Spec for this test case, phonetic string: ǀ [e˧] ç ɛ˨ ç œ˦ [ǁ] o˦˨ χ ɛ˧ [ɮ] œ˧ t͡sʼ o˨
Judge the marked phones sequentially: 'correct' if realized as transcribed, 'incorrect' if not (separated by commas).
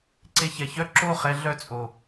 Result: correct, correct, correct